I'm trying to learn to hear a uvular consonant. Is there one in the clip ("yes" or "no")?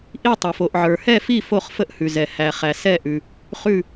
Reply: yes